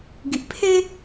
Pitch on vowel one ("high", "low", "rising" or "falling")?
low